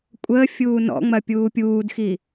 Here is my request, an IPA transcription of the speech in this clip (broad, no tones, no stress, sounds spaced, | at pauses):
kʷʼ əː fʲ uː n ɔ̰ ŋ͡m ɐ pʲ uː pʲ uː d x i